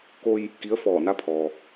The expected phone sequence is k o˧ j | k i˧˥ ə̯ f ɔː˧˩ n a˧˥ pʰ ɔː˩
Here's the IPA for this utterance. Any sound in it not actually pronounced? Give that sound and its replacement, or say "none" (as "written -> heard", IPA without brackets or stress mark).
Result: none